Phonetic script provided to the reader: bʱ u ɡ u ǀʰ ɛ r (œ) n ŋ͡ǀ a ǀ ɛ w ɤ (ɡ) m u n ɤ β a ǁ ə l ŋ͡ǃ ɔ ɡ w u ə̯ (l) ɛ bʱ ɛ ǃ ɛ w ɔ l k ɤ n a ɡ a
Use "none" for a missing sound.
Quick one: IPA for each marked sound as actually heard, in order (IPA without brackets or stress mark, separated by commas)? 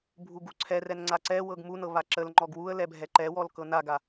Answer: ɛ, ɡ, l